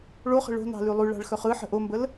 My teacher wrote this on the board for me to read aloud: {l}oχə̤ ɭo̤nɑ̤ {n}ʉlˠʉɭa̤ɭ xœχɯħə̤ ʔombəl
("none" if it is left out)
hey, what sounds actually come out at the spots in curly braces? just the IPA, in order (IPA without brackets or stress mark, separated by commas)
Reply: ɭ, l